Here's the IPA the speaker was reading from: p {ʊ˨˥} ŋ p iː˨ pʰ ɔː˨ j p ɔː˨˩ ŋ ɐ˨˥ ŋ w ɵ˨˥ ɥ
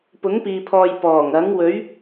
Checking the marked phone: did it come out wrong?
no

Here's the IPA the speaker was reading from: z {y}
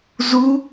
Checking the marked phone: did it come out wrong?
yes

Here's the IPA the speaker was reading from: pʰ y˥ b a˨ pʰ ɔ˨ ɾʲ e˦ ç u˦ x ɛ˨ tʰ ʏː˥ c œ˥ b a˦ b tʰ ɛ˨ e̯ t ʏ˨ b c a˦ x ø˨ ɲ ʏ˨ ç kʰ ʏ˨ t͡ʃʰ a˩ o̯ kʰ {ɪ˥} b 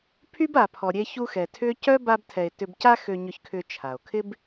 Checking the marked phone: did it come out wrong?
no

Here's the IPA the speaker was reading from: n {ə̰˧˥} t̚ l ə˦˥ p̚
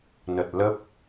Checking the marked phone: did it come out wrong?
yes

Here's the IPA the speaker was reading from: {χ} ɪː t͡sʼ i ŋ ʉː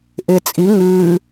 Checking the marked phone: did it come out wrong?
yes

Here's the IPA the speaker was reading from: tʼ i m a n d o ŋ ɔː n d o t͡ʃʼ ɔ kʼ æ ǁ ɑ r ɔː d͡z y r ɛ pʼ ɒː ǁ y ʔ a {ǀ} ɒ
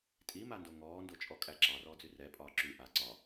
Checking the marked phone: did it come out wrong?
no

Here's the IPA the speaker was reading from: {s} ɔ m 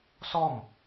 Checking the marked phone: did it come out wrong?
no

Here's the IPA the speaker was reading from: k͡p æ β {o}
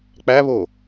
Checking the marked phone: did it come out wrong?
no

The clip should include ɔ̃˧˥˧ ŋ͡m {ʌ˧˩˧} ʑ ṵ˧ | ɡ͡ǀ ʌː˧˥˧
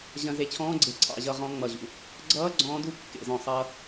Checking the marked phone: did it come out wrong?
no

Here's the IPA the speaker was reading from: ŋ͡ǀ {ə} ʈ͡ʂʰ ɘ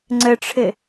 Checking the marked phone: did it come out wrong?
no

